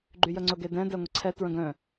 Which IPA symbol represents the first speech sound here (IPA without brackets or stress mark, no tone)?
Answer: ɡ͡ǃ